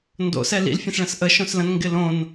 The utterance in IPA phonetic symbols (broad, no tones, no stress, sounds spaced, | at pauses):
n d o̰ s ɛ l ḭ l fʲ ə̃ s ɭ ə̃ s ʔ ə ʃ õ s l ə̃ n ŋ ɡ ɪ l õ n